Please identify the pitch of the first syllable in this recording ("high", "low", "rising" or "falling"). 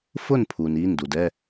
falling